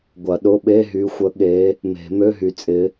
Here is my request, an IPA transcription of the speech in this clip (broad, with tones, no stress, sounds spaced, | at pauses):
ɡʷ ɐ˨˩˦ ɗ ʊ˧˥˧ ɓ e˧˥˧ ɦ y˨˦ xʷ ə˨˦ ɠ e˨˦ | m e̤˨˩˦ m ø˧˥˧ ɦ y˨ t͡sʼ ɪ˨˦